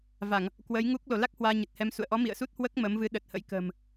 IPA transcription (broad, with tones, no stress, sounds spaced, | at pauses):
v a˧˩˨ ŋ | k w ə˨˦ j ŋ u˦˥ k̚ l o˧˩ l a˦˥ k̚ h w aː˧ ɲ ə˨˩ t̚ h ɛ˧ m s ṵ˧˨ ə̯ ʔ ɔ˨˦ m ḭ˧˨ ə̯ s u˦˥ t̚ h w əː˦˥ k̚ m əː˨˦ m v ɨ˨˦ ɗ ə˨˩ t̚ h ə̰˧˥ j k ə̤ː˨˩ m